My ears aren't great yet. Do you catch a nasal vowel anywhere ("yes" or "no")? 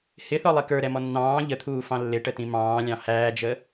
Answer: yes